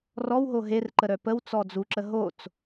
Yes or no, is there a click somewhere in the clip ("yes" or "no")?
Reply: yes